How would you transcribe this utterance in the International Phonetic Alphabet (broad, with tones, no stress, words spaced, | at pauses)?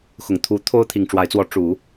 xʊ˨˩ŋt̪ʰu˧˥ t̪ʰo˥ʊ̯ t̪ʰi˨˩ŋʈ͡ʂwa˧˥ɪ̯t͡swɔ˧˥ ʈ͡ʂu˨˩˦